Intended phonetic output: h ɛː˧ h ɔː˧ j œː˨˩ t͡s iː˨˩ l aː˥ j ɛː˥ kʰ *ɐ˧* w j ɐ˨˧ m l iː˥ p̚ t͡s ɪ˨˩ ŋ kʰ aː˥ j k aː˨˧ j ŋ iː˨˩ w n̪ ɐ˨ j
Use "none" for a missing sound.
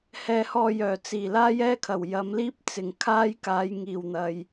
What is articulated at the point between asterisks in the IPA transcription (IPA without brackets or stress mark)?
ɐ˨˩